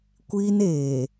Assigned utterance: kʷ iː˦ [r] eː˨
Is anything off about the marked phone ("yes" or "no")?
yes